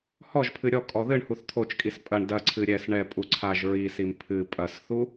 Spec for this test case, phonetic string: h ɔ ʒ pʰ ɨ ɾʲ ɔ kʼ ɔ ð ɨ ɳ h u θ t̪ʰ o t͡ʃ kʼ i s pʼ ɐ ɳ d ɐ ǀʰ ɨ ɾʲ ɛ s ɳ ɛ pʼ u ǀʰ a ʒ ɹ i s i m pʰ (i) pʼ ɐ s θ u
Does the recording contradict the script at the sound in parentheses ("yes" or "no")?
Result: yes